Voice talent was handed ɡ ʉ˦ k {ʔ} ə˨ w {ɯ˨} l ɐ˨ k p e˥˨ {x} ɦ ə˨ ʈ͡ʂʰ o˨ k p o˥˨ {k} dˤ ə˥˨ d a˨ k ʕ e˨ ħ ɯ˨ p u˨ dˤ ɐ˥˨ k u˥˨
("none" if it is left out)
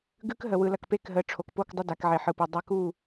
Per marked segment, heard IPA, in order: ɦ, ɯ˨, k, k

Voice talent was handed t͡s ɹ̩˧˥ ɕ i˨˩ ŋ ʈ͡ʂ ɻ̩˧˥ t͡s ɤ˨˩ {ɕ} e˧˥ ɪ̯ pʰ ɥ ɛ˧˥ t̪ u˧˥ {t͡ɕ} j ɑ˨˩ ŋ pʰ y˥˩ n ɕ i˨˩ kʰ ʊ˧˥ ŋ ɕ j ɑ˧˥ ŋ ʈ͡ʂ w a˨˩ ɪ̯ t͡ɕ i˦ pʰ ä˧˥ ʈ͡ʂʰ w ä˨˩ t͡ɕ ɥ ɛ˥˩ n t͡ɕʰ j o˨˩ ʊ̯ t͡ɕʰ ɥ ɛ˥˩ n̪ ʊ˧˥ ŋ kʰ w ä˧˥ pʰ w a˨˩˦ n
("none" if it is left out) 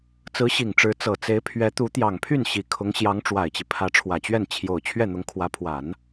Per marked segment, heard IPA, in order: t͡s, t̪

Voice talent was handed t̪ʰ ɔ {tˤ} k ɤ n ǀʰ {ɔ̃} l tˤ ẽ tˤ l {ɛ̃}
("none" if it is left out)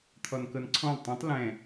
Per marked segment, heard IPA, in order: n, ɔ̃, ɛ̃

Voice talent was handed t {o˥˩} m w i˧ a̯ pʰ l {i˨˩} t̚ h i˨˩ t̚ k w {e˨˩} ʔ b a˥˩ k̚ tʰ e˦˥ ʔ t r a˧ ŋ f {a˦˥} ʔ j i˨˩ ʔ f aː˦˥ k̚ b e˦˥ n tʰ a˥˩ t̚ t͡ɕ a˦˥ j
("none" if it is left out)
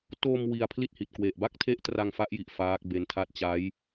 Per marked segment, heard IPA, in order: o˧, i˥˩, e˨˩, a˦˥

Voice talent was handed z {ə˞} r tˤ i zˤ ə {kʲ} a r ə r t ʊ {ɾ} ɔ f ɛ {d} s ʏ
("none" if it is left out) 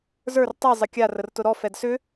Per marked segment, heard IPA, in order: ə˞, kʲ, ɾ, d

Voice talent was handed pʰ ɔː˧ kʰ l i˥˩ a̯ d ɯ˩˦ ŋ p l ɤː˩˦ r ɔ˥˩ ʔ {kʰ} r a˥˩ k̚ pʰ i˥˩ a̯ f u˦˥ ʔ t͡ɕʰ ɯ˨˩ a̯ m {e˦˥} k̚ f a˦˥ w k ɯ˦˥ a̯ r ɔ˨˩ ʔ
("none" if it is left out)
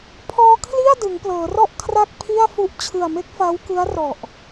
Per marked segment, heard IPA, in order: kʰ, e˦˥

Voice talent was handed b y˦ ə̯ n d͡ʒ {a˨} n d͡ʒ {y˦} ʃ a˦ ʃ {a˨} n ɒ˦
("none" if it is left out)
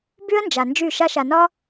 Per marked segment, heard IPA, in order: a˨, y˦˨, a˨

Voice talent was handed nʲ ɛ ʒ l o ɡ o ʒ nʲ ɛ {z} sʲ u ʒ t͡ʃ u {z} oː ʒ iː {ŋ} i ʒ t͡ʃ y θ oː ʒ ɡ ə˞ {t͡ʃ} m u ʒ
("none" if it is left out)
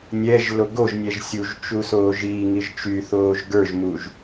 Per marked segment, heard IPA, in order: ʒ, s, ŋ, ʒ

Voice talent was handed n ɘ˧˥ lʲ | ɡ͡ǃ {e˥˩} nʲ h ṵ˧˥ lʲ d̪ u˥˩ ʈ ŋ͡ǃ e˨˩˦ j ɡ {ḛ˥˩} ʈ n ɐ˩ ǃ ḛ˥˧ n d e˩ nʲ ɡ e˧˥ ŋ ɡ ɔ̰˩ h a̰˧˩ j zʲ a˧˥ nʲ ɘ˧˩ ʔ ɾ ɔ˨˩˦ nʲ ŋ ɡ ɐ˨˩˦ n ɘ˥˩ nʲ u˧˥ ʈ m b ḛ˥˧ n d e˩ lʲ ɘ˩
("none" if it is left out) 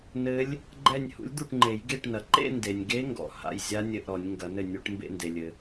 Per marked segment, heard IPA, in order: ɛ˥˩, e˥˩

